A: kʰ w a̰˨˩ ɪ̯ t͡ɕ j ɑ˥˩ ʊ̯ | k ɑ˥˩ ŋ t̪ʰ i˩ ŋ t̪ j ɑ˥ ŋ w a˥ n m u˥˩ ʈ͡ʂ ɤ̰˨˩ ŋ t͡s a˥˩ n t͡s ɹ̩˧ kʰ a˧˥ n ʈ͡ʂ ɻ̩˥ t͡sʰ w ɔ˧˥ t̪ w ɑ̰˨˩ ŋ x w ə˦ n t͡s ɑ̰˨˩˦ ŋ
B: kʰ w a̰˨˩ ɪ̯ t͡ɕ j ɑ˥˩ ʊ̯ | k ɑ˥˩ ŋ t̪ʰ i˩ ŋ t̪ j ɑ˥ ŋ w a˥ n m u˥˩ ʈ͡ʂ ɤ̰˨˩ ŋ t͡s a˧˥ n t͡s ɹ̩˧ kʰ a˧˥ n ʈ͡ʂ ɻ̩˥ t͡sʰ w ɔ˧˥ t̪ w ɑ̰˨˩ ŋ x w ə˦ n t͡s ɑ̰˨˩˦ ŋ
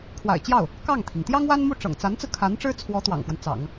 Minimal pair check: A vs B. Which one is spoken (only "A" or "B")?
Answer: B